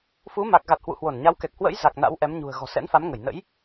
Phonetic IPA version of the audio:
f u˨˦ m a˨˩ k̚ ɣ a˨˩ t̚ h w ṵ˧˨ h w o˧˩ n ɲ a˨˦ w k ɛ˨˩ k̚ h w ə̰˧˥ j z a˨˩ k̚ n a̰˧˥ w ʔ ɛ˨˦ m ɲ ṳ˨˩ ə̯ ɣ ɔ̤˨˩ s ɛ̰˧˥ n f a˨˦ m ŋ ə˧˩ j n ə̰˧˥ j

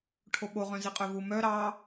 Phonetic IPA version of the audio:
ʈʰ o ɓ o ʁ œ̃ z i qʼ œ v u m œ ɾ ɑ

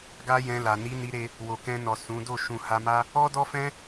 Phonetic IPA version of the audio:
ɡ a˦ j ɛ̃˧ l a˨ n i˨˦ n i˧ ɾ e˧ | w o˨ k ɛ̃˧ n ɔ˨ s ũ˨˦ d o˦˨ ʃ ũ˨ h a˧ m a˦ | ɔ˦ d ɔ˦ f ɛ̃˦

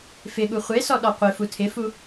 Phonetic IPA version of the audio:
f ɪ ɠ u χʷ e s ɔ ɗ ɔ qʷ ɪ f u tʰ ɪ f u

